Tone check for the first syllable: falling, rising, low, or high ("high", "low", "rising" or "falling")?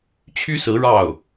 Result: high